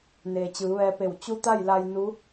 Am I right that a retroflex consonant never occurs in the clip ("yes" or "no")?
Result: yes